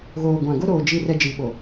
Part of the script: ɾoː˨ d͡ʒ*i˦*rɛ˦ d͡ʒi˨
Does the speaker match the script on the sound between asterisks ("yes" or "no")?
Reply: yes